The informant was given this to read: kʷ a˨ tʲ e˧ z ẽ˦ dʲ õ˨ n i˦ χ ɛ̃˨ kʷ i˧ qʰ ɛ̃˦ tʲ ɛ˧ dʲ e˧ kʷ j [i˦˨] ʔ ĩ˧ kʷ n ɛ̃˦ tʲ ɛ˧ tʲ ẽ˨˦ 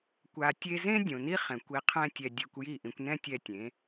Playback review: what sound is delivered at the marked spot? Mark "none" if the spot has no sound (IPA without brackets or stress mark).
i˦˨